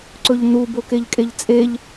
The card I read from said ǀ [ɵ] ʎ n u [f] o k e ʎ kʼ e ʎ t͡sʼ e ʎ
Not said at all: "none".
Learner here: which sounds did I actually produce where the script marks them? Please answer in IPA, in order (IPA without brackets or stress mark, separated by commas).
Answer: ɵ, b